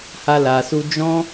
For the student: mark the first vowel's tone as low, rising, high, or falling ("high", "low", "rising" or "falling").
high